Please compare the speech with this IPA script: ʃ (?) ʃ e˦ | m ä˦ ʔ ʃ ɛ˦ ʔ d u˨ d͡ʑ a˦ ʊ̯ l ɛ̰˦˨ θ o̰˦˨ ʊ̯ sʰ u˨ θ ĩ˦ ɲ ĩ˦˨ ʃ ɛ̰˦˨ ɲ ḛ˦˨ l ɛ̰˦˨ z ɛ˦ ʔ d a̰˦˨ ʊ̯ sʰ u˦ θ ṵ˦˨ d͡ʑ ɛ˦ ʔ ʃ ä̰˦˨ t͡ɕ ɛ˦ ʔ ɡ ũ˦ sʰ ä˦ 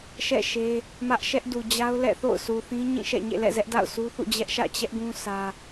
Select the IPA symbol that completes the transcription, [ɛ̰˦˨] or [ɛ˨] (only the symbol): ɛ̰˦˨